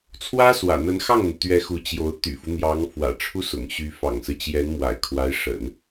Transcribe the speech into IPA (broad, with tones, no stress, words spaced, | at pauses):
t͡sʰwä˥swä̰˨˩ n̪ə˧˥nxɑ˥˩ŋn̪u˩t̪ɥɛ˧˥ xu˧˥t͡ɕjo˧˥ʊ̯ t̪y̰˨˩fu˦n̪jɑ˧˥ŋ fwä̰˨˩ʈ͡ʂʰu˥sʊ̰˨˩ŋɕy˧˥ fɑ̰˨˩ŋsɹ̩˦ t͡ɕjɛ˧˥nmwa̰˨˩ɪ̯ kʰwa˧˥ɪ̯ʂə̰˨˩˦n